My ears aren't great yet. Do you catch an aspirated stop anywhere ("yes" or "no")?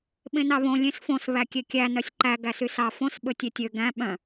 no